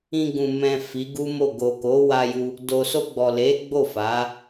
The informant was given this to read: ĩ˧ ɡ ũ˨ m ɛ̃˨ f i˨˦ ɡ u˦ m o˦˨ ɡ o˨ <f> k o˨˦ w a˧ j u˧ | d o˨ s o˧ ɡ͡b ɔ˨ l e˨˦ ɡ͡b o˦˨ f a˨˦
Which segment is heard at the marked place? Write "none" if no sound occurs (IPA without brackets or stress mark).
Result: none